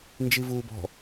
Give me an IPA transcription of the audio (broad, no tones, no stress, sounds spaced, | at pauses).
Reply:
n d͡ʒ i v uː b ɔ̤